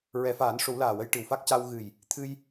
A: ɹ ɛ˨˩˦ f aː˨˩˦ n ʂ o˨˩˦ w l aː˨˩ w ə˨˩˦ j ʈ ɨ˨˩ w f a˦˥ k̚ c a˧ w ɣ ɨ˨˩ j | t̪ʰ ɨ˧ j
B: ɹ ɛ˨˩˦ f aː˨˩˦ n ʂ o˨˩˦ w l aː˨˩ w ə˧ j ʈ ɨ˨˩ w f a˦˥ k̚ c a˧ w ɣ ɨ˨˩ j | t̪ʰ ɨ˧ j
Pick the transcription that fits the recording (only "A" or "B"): B